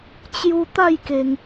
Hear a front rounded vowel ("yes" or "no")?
no